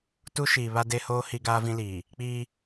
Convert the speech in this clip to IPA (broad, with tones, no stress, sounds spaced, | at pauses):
t u˦ ʃ iː˨ β a˦ d e˦ h oː˦ h i˦ ɡ aː˦ v ĩ˦ l iː˨ | k͡p iː˦